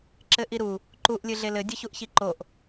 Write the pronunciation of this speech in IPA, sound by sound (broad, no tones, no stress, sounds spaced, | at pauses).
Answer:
ǁ ɘ ʔ i ɾ u | ǃ u ʔ lʲ ɨ ɮ e l ɘ dʲ ɘ ç u ʔ ç i ǃ o ʔ